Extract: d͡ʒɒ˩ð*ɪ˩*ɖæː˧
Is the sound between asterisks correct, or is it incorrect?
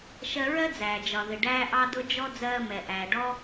correct